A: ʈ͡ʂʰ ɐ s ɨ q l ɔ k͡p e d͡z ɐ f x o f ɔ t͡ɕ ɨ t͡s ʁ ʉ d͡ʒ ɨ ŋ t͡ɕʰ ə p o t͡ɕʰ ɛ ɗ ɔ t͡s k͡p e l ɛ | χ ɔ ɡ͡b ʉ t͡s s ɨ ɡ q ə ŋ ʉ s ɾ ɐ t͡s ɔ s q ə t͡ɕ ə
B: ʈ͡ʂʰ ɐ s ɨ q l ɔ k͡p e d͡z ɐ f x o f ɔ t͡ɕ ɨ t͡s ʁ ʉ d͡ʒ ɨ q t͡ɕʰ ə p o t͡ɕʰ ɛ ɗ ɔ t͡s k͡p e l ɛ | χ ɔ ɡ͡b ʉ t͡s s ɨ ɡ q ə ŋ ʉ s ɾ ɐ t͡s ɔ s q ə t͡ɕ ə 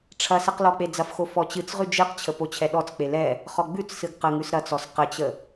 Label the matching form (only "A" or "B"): B